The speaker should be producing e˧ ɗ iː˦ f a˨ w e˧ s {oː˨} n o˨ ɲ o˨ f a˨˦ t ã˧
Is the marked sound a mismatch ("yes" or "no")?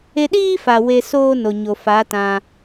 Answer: yes